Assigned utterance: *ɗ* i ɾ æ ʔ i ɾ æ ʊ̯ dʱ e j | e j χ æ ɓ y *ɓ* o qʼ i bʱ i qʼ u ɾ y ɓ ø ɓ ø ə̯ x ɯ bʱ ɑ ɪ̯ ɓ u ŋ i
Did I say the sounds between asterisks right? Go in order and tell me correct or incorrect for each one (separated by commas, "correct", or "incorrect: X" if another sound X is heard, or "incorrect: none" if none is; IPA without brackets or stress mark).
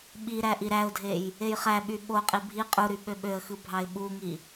incorrect: ɓ, correct